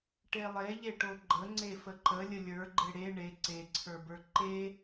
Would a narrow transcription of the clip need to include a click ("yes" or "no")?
yes